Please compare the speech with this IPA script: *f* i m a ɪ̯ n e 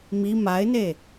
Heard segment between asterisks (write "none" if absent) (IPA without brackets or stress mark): m